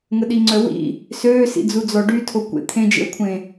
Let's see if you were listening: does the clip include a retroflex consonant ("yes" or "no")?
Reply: yes